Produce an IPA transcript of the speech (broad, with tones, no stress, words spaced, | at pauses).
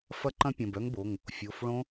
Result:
fɐ˦˥ǃɐ̃˦˥pʲɐ̃˩˧˩b œ˦˥ŋbo˩˧˩ŋ | fʲo˩˧˩fɭõ˦˥